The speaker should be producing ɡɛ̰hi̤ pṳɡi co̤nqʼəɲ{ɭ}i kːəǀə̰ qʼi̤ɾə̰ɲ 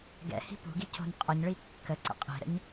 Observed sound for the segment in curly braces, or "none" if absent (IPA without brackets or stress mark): ɭ